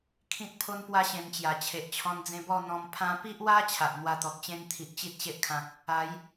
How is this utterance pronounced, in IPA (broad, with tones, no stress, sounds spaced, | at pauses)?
kʰ ĩ˦ t̚ pʰ o˦ n p w a˦ ɕ ẽ˧ m t͡ɕ j a˨˩ t͡ɕʰ e˨ ʔ t͡ɕʰ ɔ̃˧ n d͡z ẽ˧ b ɔ˥˧ n̪ ɔ̃˧ m pʰ ã˧ p i˦ ʔ w a˦ t͡ɕʰ a˨ ʔ n̪ w a˧ t̪ ɔ˨ k̚ t͡ɕ ẽ˦ n t̪ʰ i˨ ʔ t͡ɕ i˦ t̚ ɕ e˦ ʔ kʰ ã˨ k̚ | a˨˦ j